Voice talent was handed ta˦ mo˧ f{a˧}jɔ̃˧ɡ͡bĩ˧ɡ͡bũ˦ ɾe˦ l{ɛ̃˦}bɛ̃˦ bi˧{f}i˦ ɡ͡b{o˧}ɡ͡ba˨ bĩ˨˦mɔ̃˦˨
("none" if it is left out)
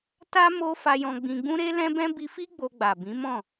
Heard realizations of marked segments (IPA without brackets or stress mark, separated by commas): a˧, ɛ̃˦, f, o˧